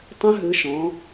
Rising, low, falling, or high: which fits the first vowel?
rising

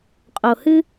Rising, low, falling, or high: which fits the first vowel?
low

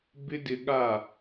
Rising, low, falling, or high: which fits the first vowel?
high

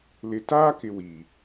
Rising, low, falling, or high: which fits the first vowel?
low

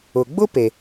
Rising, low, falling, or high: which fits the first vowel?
low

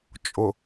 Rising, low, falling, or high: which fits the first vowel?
low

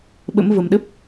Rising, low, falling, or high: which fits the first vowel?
rising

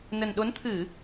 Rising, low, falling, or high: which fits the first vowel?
low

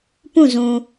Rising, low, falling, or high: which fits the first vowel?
falling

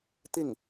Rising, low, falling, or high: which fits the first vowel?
falling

